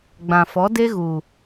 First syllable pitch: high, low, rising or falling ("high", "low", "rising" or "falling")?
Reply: low